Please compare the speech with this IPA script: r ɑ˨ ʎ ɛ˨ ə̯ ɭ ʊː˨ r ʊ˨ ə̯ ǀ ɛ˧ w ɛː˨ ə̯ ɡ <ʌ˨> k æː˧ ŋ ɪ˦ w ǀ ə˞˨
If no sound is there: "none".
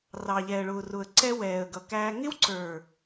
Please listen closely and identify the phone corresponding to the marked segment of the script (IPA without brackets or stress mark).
ʌ˨